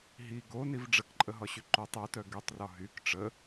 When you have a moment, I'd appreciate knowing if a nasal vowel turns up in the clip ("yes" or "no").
no